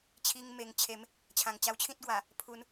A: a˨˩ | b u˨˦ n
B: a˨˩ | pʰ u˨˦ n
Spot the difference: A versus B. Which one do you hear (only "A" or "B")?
B